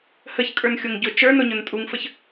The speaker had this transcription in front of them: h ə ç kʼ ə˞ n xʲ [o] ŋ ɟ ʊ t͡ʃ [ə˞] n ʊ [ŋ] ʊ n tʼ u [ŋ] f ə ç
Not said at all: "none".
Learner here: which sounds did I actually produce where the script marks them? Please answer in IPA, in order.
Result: o, ə˞, ɲ, ŋ

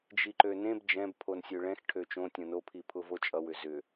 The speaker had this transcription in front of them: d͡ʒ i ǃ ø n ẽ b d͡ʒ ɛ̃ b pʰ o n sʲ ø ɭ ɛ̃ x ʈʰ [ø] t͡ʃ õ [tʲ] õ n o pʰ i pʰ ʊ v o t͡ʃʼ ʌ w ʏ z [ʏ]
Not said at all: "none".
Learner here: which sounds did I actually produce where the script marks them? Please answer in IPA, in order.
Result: ø, tʲ, ʏ

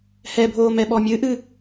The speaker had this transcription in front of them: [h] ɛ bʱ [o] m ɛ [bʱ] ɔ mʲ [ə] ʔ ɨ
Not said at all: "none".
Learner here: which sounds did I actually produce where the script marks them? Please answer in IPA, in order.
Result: h, oː, ɓ, ɨ

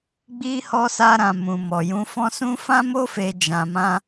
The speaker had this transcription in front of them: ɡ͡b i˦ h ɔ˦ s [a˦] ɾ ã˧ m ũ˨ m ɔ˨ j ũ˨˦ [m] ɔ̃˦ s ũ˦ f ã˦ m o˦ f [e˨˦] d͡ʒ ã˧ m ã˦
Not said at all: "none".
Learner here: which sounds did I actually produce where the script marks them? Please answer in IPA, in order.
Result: a˦, f, e˧

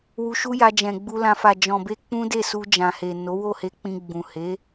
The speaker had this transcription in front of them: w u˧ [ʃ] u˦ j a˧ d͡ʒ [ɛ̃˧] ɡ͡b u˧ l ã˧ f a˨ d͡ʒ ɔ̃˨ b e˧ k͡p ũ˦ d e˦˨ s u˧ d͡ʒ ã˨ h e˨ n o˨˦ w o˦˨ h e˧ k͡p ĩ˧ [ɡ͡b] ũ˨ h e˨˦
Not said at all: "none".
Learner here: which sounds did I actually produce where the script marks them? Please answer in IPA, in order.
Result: ʃ, ɛ̃˨, ɡ͡b

